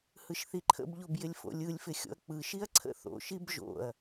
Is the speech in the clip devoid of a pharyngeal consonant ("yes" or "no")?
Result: yes